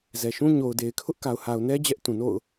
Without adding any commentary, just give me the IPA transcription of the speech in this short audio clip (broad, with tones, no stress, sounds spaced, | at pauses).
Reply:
z ɛ˨ ʃ ũ˦ ɲ o˨ ʊ̯ d e˨ ɪ̯ kʰ ʊ˦ ʔ k a˨ ʊ̯ h a˨ ʊ̯ n ɛ˦ d͡ʑ ɛ˦ ʔ t ũ˨ n o̰˦˨ ʊ̯